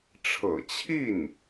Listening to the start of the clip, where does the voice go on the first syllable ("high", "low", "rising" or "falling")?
low